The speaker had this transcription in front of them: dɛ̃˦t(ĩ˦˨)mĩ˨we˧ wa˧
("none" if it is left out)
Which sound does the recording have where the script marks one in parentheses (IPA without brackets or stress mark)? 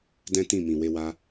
ĩ˦˨